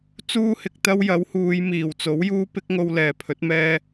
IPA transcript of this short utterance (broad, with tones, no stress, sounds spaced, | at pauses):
t͡s uː˥ h ɪ˨ k̚ t̪ ɐ˥ w j ɐ˨˥ w h uː˨˧ j m iː˨˩ w t͡s o˨˥ w j uː˥ p ɪ˥ k̚ ŋ o˧ w l ɛː˨˩ pʰ ɵ˨˥ t̚ m ɛː˥